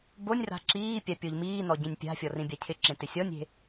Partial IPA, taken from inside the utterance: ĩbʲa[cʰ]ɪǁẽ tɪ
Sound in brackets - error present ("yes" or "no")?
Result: no